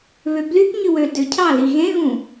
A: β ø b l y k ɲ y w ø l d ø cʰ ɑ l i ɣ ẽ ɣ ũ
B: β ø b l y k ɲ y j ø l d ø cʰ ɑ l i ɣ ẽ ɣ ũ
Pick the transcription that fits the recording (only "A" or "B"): A